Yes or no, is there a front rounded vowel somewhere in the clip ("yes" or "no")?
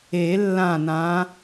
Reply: no